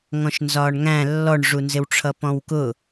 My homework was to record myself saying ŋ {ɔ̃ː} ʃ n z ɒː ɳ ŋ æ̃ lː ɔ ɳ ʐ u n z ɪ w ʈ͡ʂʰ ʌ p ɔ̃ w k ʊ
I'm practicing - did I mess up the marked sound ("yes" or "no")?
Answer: yes